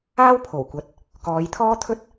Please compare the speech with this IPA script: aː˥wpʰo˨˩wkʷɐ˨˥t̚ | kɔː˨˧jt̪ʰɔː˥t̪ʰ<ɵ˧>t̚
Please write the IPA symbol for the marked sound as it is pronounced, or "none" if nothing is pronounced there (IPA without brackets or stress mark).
ɵ˥